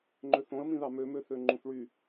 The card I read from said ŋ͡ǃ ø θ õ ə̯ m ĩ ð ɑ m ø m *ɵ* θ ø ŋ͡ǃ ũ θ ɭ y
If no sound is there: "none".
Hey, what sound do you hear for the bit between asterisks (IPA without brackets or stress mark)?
ø